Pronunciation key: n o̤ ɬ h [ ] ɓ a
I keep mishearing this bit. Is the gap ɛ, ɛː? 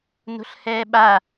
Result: ɛː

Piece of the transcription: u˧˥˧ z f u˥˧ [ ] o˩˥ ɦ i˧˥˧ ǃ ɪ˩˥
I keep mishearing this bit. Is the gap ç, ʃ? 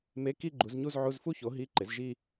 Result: ç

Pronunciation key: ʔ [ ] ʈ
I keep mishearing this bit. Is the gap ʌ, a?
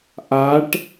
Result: a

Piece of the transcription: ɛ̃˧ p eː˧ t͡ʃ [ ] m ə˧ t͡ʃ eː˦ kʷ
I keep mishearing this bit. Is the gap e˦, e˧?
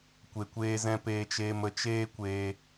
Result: e˧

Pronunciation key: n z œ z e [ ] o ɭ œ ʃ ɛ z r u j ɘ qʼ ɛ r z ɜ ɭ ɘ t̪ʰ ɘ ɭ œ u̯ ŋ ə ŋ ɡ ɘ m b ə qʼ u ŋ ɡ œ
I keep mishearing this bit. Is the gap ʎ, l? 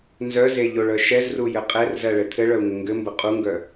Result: ʎ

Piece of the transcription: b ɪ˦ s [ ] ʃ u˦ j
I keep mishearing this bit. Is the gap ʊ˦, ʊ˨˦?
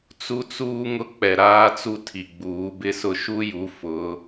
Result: ʊ˦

